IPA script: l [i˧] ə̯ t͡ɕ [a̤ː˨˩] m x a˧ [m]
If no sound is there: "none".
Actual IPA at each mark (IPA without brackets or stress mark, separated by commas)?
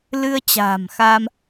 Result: ɨ˧, a̤ː˨˩, m